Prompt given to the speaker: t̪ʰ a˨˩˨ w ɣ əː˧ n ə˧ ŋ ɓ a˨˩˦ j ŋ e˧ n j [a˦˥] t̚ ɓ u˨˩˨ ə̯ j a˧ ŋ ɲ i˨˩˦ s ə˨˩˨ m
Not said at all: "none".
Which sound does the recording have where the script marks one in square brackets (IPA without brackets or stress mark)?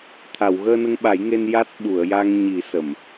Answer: a˦˥